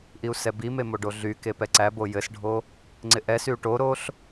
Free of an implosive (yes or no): yes